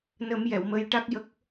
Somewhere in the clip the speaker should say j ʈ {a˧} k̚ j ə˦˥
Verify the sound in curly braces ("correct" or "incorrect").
incorrect